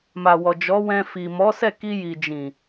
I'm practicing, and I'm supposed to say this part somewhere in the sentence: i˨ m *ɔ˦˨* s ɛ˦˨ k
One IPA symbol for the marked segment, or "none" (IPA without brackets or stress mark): ɔ˨˦